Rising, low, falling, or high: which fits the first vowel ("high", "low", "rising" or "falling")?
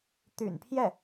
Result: low